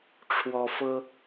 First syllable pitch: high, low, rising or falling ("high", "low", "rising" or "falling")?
high